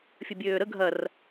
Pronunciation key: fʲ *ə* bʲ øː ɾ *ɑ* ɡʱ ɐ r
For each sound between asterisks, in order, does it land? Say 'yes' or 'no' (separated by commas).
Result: yes, no